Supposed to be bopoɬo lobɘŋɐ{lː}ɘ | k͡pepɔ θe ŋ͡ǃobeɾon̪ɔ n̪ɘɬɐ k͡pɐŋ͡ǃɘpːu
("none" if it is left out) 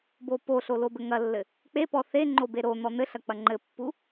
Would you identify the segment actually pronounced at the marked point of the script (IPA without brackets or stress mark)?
lː